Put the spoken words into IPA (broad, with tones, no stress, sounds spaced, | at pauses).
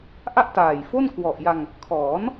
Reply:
ʔ a˥˩ ʔ t aː˨˩ j f o˥˩ n k w ɔ˨˩ ʔ j a˧ ŋ | kʰ ɔː˩˦ n